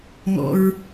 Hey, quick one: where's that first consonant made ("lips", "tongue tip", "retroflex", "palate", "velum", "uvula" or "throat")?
velum